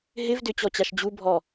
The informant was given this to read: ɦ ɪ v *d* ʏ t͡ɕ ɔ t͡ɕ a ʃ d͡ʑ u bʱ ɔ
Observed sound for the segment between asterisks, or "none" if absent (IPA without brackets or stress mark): d